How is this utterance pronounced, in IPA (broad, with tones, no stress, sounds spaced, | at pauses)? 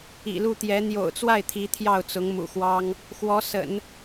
ḭ˨˩ l u˥˩ t̪ j ɛ˧˥ n̪ j o̰˨˩ ʊ̯ t͡s w a˥˩ ɪ̯ t̪ʰ i˧˥ t̪ʰ j ɑ˥˩ ʊ̯ t͡s ʊ˧˥ ŋ m ṵ˨˩ x w ɑ˥ ŋ | x w ɔ˧˥ s ə̰˨˩˦ n